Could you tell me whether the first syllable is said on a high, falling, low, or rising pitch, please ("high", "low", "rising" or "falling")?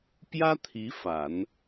high